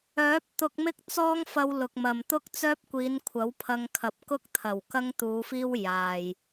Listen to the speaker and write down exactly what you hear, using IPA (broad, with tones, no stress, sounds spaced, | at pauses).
œː˨˥ p̚ t̪ ʊ˧ k̚ m ɪ˥ k̚ t͡s ɔː˥ ŋ f ɐ˧ w l ʊ˨ k̚ m ɐ˨ m t̪ ʊ˥ k̚ t͡s œː˥ p̚ kʷ iː˨˧ n kʷʰ ɐ˨˥ w pʰ ɐ˧ ŋ kʰ ɐ˨˥ p̚ k ʊ˥ k̚ t̪ʰ ɐ˨˩ w k ɐ˥ ŋ t̪ uː˨˧ f iː˥ w j aː˨ j